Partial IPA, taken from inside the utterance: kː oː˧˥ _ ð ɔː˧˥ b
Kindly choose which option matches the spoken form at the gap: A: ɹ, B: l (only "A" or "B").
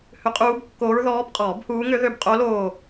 A